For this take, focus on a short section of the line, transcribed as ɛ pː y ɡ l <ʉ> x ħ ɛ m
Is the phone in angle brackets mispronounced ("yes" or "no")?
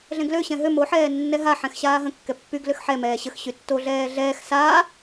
yes